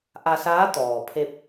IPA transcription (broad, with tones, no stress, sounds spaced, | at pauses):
ʔ a˧ s aː˧˥ t̪ ɔː˩ pʰ e˧ p̚